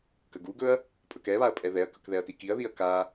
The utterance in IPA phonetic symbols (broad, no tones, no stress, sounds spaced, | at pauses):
k ə ɡ u ɡ ɵ ɐ̯ | pʼ ɵ k ɛ β a ɐ̯ pʼ ɛ ð ɛ ɐ̯ k ɵ k ð ɛ ɐ̯ t i k i ɐ̯ ð i ɐ̯ k a